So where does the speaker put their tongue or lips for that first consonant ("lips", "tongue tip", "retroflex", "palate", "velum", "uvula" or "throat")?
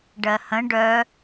retroflex